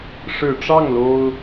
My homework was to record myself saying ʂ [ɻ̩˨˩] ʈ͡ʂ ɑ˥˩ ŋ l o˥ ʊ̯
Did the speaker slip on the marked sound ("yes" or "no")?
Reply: no